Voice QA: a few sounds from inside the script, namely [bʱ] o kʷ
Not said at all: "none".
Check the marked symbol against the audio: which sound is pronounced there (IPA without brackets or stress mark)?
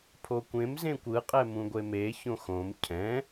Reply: pʰ